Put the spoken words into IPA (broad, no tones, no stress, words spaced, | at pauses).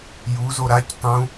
juzo ɾac tˤũ